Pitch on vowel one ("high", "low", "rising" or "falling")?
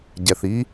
low